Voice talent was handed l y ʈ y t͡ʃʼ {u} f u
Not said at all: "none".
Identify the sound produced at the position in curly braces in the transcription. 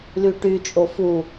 o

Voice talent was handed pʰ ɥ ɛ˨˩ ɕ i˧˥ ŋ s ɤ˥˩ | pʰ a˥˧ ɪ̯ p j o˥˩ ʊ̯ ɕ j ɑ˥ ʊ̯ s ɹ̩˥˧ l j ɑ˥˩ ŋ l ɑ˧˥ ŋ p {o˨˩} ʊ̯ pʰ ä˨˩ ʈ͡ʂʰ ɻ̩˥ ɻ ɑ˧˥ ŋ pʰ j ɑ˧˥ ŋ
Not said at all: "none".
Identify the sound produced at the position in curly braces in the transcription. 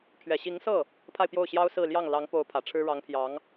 o˧˥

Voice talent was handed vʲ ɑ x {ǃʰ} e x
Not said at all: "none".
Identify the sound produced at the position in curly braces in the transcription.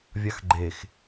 ɡ͡ǃ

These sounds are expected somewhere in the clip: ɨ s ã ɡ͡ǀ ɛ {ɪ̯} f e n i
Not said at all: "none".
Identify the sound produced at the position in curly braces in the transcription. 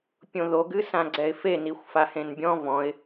ɪ̯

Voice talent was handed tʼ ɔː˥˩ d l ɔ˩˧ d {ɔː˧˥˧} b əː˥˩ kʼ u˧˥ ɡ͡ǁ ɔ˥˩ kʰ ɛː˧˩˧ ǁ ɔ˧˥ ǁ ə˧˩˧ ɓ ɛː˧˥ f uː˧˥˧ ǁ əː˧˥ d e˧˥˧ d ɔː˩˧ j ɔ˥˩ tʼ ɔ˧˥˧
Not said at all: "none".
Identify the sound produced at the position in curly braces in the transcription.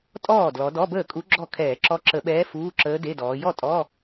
ɔ˧˥˧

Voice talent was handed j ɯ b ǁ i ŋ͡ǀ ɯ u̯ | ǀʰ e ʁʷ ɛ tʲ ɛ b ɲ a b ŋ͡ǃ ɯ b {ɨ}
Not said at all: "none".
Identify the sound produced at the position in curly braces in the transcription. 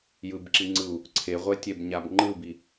i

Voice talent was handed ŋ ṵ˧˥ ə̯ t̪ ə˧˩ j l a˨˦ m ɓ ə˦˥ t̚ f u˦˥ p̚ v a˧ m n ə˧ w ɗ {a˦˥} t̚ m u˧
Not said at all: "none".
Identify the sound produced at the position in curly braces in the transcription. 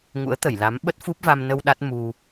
a˦˥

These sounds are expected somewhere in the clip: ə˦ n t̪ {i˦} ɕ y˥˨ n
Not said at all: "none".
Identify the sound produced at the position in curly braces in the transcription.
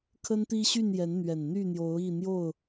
i˦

